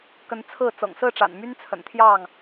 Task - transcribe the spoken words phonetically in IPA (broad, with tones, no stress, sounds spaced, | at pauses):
k ə˨˦ n t͡sʰ ɹ̩˥˨ t͡s ɤ̰˨˩ ŋ s ɹ̩˥˨ ʈ͡ʂ a̰˨˩ n m y˦ n t͡sʰ ə̰˨˩ n t̪ʰ j ɑ˥˨ ŋ